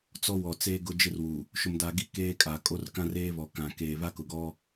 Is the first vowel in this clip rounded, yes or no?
yes